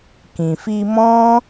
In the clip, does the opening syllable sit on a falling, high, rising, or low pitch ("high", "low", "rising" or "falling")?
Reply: low